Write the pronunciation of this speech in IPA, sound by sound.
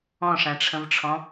ɔ̃ ʂ æ̃ ʈ͡ʂʰ ə̃ v ʈ͡ʂʰ ɔ̃

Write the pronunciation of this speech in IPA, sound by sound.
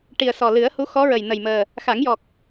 ʈ i˨˩ ə̯ s ɔ˨˩ l ɨ˨˩˦ ə̯ h u˧˥ x ɔ˧˥ ɹ ə˨˩ j n ə˨˩ j m əː˨˩ | x a˨˩˦ ŋ j ɔ˨˩ k̚

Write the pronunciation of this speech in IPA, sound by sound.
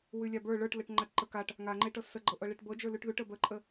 w ʉ lʲ a b ə˞ ɭ ə˞ ʈ l ə ʈ ŋ͡ǃ a ʈ ǃ ə k a ʈ | ŋ a ŋ͡ǃ e ʈ ɤ s ə ɡ͡ǃ ɤ ʔ ɤ ɭ e ʈ b ɤ d͡ʒ ə˞ l ʉ ʈ ð ʉ ʈ ə b ə ǃʼ ə

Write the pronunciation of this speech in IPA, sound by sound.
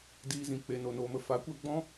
d iː˧ z ĩ˨ k͡p e˨ n o˨ n oː˧ m ə˧ f a˨˦ kʷ ɛ˧ ɡ͡b ɔ̃˦

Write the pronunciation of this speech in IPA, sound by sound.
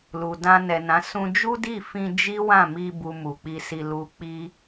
l u˨ d ã˧ n ɛ˨ n ã˨˦ s ũ˧ d͡ʒ u˦ d i˦˨ f ĩ˧ d͡ʒ i˦ w ã˦˨ m i˧ b u˧ m u˨ k͡p i˧ s i˧ l u˧ k͡p i˦

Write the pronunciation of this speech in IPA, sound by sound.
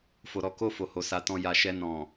f o˨ ɾ ɔ˨˦ k o˦˨ f o˨ h o˨˦ s a˧ t ɔ̃˧ j a˨ ʃ ɛ˧ n ɔ̃˨

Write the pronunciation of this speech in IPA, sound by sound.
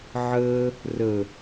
ʕ əː | r ə

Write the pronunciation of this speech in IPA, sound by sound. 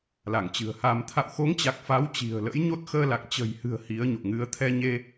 l a˧˩ ŋ t͡ɕ ɨ̤˨˩ ə̯ h a˧ m t̪ʰ a̰˧˨ w x o˨˦ ŋ t͡ɕ a˨˩ k̚ f a˨˦ w t͡ɕ i̤˨˩ ə̯ l ə̰˧˥ j ɲ o˦˥ t̚ x əː˧ l a˨˩ k̚ t͡ɕ ə̤˨˩ j h ɨ̤˨˩ ə̯ h i˨˦ ə̯ ɲ o̰˧˨ ŋ ɨ˨˦ ə̯ t̪ʰ ɛ˧ ɲ e˧

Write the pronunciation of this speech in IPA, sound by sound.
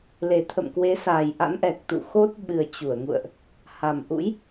l e˨˩ t̪ʰ ə̰˧˨ m k w e˨˦ s aː˨˩ j ʔ a̰˧˥ n ʔ ɛ˨˩ k̚ t̪ ṵ˧˨ x o˦˥ t̚ ɓ ɨ˨˩ ə̯ t͡ɕ u˧˩ ə̯ ŋ ṵ˧˨ ə̯ ʔ | h a˨˩ m ʔ ṵ˧˥ j

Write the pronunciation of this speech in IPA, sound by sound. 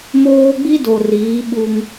m oː˦ ɡ͡b i˦ d o˨ r iː˨˦ ɓ u˦ ŋ

